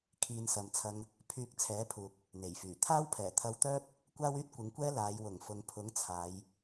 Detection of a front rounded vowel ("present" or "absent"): present